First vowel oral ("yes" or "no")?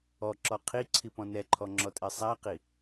yes